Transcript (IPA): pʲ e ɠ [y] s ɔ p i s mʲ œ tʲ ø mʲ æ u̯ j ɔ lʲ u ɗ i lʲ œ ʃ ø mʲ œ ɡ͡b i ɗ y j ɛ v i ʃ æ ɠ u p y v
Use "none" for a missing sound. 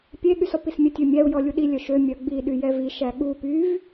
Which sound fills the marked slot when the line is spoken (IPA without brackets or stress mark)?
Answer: y